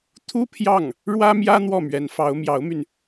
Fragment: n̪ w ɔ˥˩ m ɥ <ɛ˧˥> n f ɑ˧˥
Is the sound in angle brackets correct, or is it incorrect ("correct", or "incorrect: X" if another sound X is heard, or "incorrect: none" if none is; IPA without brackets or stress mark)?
correct